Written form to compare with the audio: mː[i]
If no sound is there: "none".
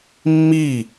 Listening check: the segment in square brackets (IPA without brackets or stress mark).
i